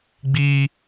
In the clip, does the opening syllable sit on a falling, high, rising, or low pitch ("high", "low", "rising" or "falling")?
high